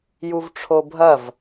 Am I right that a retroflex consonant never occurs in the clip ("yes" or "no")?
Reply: no